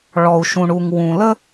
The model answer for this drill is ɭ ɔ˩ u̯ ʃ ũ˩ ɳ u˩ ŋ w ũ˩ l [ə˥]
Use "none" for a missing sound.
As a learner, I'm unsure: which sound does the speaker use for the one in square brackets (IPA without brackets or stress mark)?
ə˥